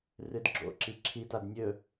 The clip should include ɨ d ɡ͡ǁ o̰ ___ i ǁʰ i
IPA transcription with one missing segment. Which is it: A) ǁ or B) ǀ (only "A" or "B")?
A